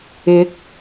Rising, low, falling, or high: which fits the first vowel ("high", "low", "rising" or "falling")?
rising